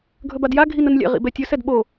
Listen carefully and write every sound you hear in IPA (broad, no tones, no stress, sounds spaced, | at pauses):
ɡʱ ɵ b a d j a ɡʱ i n ə n lʲ ɛ̰ ʁ ḭ b ɛ tʲ ɵ s ɛ d ɓ o